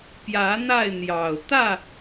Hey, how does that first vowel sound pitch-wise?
rising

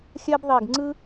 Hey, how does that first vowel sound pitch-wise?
high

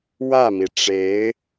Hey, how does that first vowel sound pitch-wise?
falling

